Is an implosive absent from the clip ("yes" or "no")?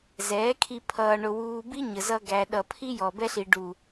no